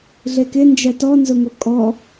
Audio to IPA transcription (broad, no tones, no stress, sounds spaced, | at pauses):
ɮ e k ɪ n d͡ʒ ɛ t ɔ n z ʊ ŋ o kʼ ɔ